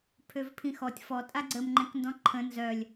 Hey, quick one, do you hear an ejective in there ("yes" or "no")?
yes